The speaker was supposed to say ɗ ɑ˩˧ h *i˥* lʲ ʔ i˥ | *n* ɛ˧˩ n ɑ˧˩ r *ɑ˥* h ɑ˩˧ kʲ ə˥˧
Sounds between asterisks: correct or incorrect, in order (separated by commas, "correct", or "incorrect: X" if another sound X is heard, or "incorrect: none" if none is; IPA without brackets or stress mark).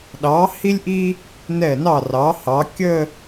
correct, correct, incorrect: ɑ˩˧